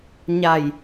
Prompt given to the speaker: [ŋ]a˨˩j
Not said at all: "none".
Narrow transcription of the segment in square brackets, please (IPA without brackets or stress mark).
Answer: ɲ